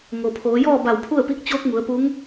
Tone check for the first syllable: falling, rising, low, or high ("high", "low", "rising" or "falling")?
low